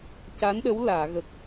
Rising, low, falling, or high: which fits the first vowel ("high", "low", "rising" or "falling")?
rising